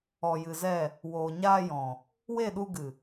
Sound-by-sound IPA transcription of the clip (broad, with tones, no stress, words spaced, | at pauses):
ɔ˨jɨ˨zɛ˦˨ | woː˨ɲaː˧jɔ̃˨ | we˦˨ɗu˧ɡɨ˨